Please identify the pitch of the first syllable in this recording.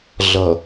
low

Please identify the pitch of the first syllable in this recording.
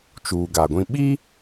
low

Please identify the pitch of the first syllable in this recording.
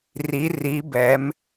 rising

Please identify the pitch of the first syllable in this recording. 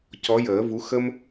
rising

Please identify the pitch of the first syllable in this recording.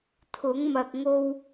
rising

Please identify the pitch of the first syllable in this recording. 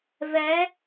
rising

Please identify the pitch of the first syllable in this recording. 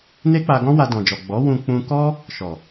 high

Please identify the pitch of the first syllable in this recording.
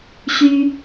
high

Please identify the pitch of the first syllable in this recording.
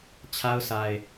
high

